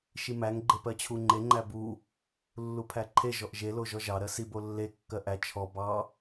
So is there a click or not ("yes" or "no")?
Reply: yes